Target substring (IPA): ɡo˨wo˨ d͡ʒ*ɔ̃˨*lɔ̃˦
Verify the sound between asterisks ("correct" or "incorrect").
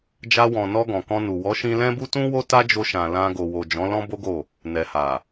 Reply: incorrect